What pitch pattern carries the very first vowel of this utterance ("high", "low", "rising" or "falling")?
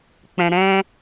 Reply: low